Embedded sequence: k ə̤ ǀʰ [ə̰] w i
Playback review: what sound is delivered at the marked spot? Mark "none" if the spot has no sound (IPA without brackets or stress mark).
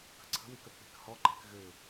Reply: ə̤